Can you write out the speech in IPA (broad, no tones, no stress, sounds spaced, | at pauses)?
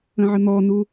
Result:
ə̃ ʕ ə n̪ ɔ n u